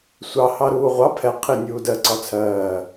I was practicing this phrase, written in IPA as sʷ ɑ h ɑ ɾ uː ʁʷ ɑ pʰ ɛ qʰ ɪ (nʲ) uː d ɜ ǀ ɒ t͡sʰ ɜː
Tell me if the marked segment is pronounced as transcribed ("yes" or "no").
yes